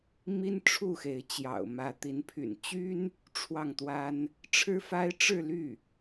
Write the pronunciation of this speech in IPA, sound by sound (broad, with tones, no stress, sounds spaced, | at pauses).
m i˥ n ʈ͡ʂʰ u˥˩ x e˧˥ ɪ̯ t͡ɕ j ɑ̰˨˩ ʊ̯ m ä˧˥ t̪ i˧˥ n pʰ y̰˨˩ n t͡ɕ y˥ n | ʈ͡ʂʰ w ɑ˥˩ ŋ t̪ w a˥ n | ʈ͡ʂʰ ɻ̩˥ f a˥ ɪ̯ ʈ͡ʂ ɻ̩˥˧ l y˥˩